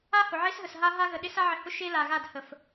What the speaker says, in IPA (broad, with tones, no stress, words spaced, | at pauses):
a˦hʊ˨ʕe˦sɦə˨s ɦa˦ɦa˦ɣə˨ ɗɪ˦sa˦ʕɪ˨hʊ˦ ʃe˦ la˨ɣa˦˨dhə˨f